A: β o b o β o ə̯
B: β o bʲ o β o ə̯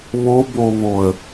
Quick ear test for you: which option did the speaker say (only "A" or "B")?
A